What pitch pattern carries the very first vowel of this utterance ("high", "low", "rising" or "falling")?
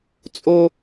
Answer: high